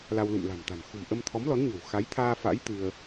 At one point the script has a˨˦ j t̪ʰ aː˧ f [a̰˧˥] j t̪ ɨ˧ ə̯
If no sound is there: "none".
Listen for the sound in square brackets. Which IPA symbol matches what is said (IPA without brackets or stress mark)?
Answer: a̰˧˥